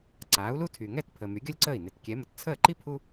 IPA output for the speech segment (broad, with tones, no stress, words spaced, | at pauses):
ǀaː˩˥u̯lu˥ tʰy˩ŋɛ˥˩t pʰəː˩ my˩˥ɡʲɔ˥lʲǀəː˥˩i̯ ne˩tkʲɛ˩˥mə˩t t͡sʰəː˥˩ǃi˥ pʰu˥